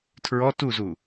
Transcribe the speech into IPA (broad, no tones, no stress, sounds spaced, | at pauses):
tʰ ɹ ɔ t u z u